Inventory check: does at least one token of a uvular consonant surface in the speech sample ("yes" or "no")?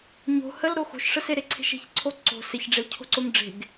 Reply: no